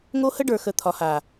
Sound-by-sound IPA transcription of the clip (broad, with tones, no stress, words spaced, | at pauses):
ŋo˦hə˦ɖə˞˨xə˨ t̪ʰɒ˨ha˨